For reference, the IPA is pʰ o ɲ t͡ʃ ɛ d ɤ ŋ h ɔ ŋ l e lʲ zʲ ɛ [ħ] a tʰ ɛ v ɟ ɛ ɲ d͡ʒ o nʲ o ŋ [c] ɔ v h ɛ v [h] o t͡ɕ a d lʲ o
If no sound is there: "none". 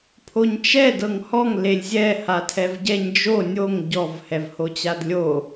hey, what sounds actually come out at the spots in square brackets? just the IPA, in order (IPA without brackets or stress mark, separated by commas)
h, ɟ, h